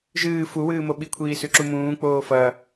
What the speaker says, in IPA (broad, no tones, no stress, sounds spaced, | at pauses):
ʒ ɨː f u w ɨː m o ɓ i kʷʰ iː s ʉ ǁ u m ũː k͡p oː f ɐ